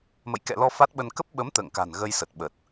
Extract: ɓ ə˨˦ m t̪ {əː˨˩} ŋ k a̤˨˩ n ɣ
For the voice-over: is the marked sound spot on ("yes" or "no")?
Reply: no